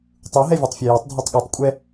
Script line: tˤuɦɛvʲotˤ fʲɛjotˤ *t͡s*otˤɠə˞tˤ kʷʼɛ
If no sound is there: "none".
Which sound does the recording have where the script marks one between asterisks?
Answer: dʱ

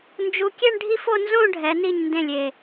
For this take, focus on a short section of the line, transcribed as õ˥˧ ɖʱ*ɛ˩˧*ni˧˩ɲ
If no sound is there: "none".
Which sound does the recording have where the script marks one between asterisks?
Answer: ɛ˩˧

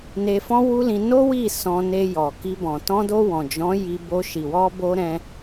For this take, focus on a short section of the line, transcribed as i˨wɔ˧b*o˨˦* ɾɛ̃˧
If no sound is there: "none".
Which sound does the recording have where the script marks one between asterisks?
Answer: o˧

